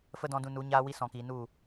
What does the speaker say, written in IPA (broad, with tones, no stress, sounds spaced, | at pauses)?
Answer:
f ə˦ d ɔ̃˧ d ũ˧ n u˨˦ ɲ aː˦ w i˦ s ɔ̃˨ k iː˨ n u˦˨